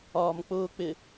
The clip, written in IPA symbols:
ɒːmk͡pʊːk͡pɪ

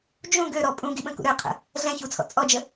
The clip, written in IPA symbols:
d͡ʒũ ɡøɾɔ pʼũɡiɓə̃kṵ ɾøqʰə̰ | ɮɛ̃çut͡sʰɔ̰ t͡sʼɔd͡ʒə

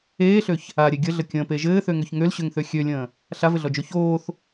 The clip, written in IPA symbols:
eːɬøç | aɾʲe ɡʲəɮə kʲə̃ːpe ʒɘːθøŋøç ŋølɕøŋθø xʲølʲə̃ː | ɬavɘɮɔd͡ʒo çoːθ

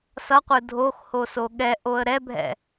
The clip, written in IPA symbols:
sʌqʷɯ dʱoxhoso ɠɛʔoə̯ ɾɛbʱɛ̰

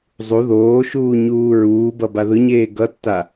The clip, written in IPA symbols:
zˤu ðoːʃuː ɲuːɹuːbʌ baðɯɲeː ɡʌtːa

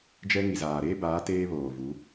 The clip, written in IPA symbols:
d͡ʒɛ˦ ŋi˨zaː˨ɾeː˦baː˨˦ teː˦βoː˨vu˨˦

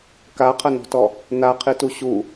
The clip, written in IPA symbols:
kaqʰɐnɔ̤tɔ | naqʰitu ɕu

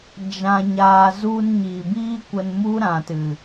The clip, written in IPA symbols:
d͡ʒã˨ɲaː˨ zu˧n ɲiː˨biː˦kʷə˧n mu˦ ɾã˨tɨ˨

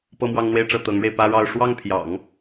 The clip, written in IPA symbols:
pɤ˥˧mwɑ˥˧ŋn̪we˥˧ɪ̯ʈ͡ʂɤ˥˩ t̪ɤ˧˥ŋɻe˧ɪ̯pä˥ɻɑ˥˧ʊ̯ ʂwɑ˥˩ŋpʰjɑ̰˨˩˦ŋ

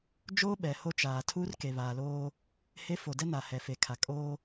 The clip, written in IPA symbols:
d͡ʒoː˦ɓɛ˨ ho˦t͡ʃaː˨ tʰuː˦rke˨βaː˨loː˦ | he˦ fo˨dɛ˦na˨ hɛ˨fe˨kʰa˨ kʼoː˦

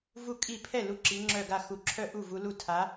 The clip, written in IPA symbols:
vu˥˩kʼi˥˩ pʰɛ˥˩lu˨˦ ǁi˨˦ ŋ͡ǁœ˥˩ɡa˥˩ xu˨˦ǁʰœ˥˩ʔu˥˩ vu˨˦lu˥˩ tʰa˨˦

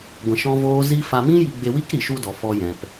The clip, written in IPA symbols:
ɡʷɛ̃˧ʃɔ̃˦voː˦ zi˦ fa˧mĩ˦ji˧ ɡ͡be˧ wi˦kɾi˨ʃu˧dɔ˨ fɔ˧jɛ̃˨p

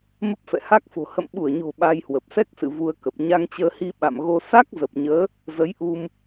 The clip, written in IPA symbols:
mə˦˥p̚fɛ̰˧˨ha˦˥k̚fo̤˨˩ hə̰˧˨mɓu˧˩ə̯ɲo̤˨˩ ɓa˧jhwə˨˩p̚sɛ˦˥k̚sɨ̰˧˨ vu˧ə̯kə˨˩p̚ ɲa˧ŋt͡ɕəː˧hi˧ ɓa̰˧˨mɣo˧ sa˦˥k̚zə˨˩p̚ɲəː˨˦ | zə˨˦j ʔu˧m

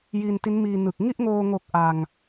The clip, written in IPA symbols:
ji˧nti˦˥nmiː˧nɯ˨˩k̚ ŋi˥˩ʔŋoː˧ŋo˨˩k̚ ʔa˧ŋ

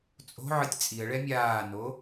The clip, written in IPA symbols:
t͡sʼo̤ ʕɯtʲt͡sʼiə̯ɭɛ mʲaːno

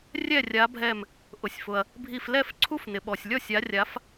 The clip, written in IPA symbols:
rʲɛ˥˩rʲa˨˦bʱɛ˧˩m | ʔʊ˩sʲfʊ˩ɐ̯ | bʱi˧˩flɛ˥˩f ǀʰu˦˥fnɪ˩ɓɔ˩sʲlʲɔ˥˩sʲ a˨˦rʲa˨˦f

